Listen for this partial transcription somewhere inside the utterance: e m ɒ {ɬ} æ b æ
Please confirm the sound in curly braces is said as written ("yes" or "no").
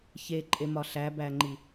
yes